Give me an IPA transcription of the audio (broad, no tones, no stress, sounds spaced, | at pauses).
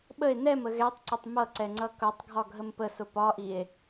ɓ ə e̯ n ɛ m ə ɣ ɛ tˤ ǀ ə tˤ m ʌ ǀ ɛ ŋ͡ǀ ʌ k ʌ tˤ ɡʱ ɒ ɡʱ ə m p ə s ʊ p ɒ ʔ i e̯